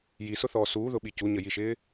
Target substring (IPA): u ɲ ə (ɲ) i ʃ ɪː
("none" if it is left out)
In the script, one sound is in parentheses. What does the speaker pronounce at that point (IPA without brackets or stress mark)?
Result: j